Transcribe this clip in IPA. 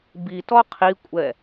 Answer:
b i t ɔ qʰ i kʷʼ ɛ

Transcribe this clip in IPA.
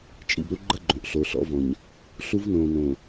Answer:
t͡ʃʼ ḭ˨ b ɾ u˦ ɡ͡ǃ ə˦ ɡ͡ǃ õ˨ ʔ ɬ o˨ ɬ ɔ̰˦ v ɔ̃˨ ɲ | ɬ u˦ v n õː˨ n õ˨

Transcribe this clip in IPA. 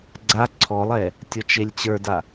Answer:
ɡ͡ǀ a ǀʰ ɔ lˠ ɛ | tʲ ɔ t͡ʃ e lʲ t͡ɕ ə˞ d a

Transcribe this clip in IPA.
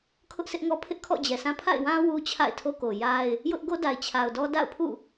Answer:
kʰ ʊ˦ ʔ sʰ ɪ˦ ʔ ŋ ɔ˦ pʰ ɪ˦ ʔ kʰ ɔ̰˦˨ d͡ʑ ɛ˨ sʰ ã˦ pʰ a̰˦˨ ɪ̯ w ã˦ w u˦ t͡ɕʰ a̰˦˨ ɪ̯ tʰ o˦ k o˨ j a˦ ɪ̯ | j ʊ˦ ʔ ɡ o˦ d a˨ ɪ̯ t͡ɕʰ a˨ ʊ̯ d ɔ˦ d a̰˦˨ ʊ̯ pʰ ṵ˦˨

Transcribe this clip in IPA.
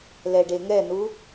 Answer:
l ɛ ɖ e ŋ ɛ n u

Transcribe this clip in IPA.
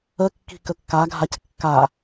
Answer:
ə kː i̤ k ə kː a ɡʱ a c kː a

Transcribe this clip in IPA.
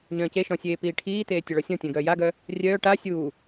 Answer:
ɲ œ̃ː c e ʃ ɔ̃ sʲ eː p iː ʈʰ iː t eː tʲ ə ɭ ɔ sʲ ɔ̃ tʲ œ̃ ɡ œː j a ɡ œ | rʲ œː ʈ a sʲ uː

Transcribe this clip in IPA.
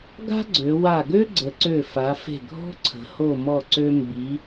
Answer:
ɡ a̤˥ ɡ͡ǀ ø˩˧ w a˧˩ ɡ ø˥ ɡ͡ǀ ə˩˧ ǀ ø˧˩ f a˩˧ f e̤˧˩ ɡʱ ɔ̤˥ ǀʰ ə̤˩˧ h o˧˩ m ɔ˧˩ ǀ ø˧ m b i˩˧

